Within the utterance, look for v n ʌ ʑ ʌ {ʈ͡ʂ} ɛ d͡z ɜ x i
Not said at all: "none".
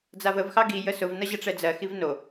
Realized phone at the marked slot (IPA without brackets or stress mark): ʈ͡ʂ